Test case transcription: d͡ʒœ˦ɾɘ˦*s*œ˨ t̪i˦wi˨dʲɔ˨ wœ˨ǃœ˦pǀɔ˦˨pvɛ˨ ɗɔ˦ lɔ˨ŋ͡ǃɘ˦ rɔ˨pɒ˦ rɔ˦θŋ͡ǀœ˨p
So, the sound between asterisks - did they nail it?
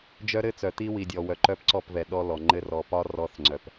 no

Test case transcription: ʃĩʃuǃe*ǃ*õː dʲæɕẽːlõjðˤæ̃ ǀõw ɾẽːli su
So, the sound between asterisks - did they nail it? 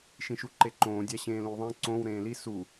yes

